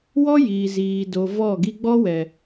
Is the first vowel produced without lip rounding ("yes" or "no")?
no